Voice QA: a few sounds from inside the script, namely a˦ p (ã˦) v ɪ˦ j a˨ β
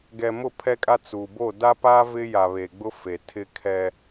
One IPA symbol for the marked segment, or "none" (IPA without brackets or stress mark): a˦